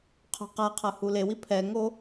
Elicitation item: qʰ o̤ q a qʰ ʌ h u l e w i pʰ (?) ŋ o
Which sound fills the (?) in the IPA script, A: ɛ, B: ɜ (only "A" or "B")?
A